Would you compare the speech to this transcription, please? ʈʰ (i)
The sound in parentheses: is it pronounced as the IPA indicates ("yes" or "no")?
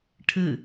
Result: no